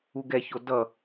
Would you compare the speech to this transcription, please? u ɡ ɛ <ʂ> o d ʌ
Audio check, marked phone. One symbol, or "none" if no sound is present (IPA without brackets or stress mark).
ç